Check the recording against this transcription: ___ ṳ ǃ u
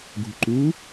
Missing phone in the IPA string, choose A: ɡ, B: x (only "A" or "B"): A